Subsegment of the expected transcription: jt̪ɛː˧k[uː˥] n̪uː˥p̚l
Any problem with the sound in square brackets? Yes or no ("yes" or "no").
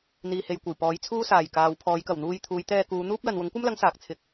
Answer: yes